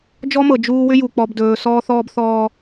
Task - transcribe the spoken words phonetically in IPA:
d͡ʒɔ˦mɤ˨ d͡ʒuː˦ wʏ˦ju˨ k͡pɔ˨bdɵː˨sɔː˦θɔː˦b θɔː˦

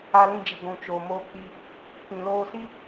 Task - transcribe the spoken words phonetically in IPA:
a˧lĩ˧d͡ʒi˨ ɡʷũ˨t͡ʃoː˨moː˧k͡pi˧ | pĩ˨loː˧si˦

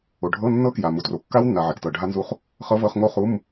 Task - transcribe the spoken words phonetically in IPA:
o˨ɖʱɤ˧˥˧ nːɤ˦˥kja˨ mu˨tro˨kːa˦˥wnːa˨ ʕɛ˨ktɤ˨ɖʱa˦˥nzu˦˥χ | χɤ˦˥vɤ˧˥˧χŋo˦˥χu˧˥˧m

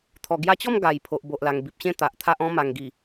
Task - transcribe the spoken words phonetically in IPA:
t̪ʰɔ˨˩ɡja˧t͡ɕɔ˥˧m ɡa˨˩j pʰo˨ʔbo˨ʔla˨˩ŋ bi˨p̚ɕẽ˥˧ t̪a˨ʔt̪ʰa˦ʔ ɔ̃˧ma˨˩ŋɡi˨˩

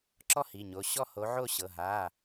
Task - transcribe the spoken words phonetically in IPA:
ǁɔ˥˧hi˩˧˩ɲo˩˧˩ ɕɔ˥˩ho˨˥ʕo˥˧ ɕɤ˩˧˩ ɦa˩˧˩

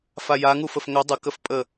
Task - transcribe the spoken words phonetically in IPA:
fajaŋufəf ŋœ dˤəkəf pʼə

